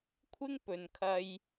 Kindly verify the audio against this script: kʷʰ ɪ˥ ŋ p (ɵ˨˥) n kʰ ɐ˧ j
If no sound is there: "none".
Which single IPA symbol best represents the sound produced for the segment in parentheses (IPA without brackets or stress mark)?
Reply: ɵ˨